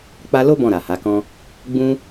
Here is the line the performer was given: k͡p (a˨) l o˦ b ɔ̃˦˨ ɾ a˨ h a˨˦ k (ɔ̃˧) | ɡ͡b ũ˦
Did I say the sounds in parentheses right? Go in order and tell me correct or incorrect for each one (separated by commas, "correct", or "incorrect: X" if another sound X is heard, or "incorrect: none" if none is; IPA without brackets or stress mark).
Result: incorrect: a˧, incorrect: ɔ̃˦